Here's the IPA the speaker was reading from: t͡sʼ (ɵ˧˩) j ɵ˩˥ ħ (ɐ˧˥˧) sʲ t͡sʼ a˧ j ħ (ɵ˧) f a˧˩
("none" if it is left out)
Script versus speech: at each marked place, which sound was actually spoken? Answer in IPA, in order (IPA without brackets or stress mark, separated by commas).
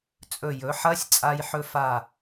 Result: ɵ˧˩, ɐ˧˥˧, ɵ˧